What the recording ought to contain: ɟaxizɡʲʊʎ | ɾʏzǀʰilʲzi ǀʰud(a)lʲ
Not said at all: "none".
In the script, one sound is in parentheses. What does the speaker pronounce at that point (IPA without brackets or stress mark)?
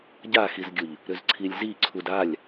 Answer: a